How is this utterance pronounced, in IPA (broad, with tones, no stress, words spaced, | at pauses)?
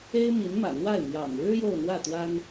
e˥ɪ̯mi˧˥n mä̰˨˩n̪wa˥˩ɪ̯mjɑ̰˨˩ŋ ɻɻ̩˥ jo˥˧ʊ̯n̪wä˥˩t̪wa˥n